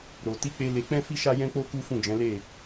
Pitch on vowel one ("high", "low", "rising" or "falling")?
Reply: low